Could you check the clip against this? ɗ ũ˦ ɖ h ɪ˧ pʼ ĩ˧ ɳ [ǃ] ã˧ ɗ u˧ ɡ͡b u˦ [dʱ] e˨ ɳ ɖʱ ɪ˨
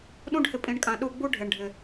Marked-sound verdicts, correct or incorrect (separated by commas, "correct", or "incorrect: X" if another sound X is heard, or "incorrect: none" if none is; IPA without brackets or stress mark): incorrect: kʼ, incorrect: ɖʱ